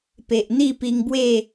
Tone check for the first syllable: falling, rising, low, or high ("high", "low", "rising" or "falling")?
low